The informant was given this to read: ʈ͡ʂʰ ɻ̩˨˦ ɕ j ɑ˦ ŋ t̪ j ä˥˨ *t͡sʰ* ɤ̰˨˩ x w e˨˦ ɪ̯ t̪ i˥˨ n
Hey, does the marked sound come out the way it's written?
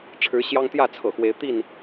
yes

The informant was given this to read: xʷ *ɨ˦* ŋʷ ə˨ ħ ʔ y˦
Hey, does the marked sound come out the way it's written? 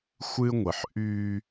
yes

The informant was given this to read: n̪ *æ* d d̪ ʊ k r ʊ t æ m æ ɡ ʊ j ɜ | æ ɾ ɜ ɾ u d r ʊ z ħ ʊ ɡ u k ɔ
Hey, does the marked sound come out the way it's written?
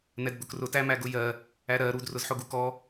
no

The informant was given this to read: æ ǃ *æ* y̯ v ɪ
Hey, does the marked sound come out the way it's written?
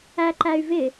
yes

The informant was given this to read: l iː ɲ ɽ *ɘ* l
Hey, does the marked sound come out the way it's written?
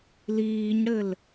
yes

